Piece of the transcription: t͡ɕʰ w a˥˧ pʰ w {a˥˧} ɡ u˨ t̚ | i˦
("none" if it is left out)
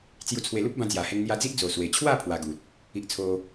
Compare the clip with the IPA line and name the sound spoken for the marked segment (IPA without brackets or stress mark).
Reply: a˧